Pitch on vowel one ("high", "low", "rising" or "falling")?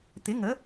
rising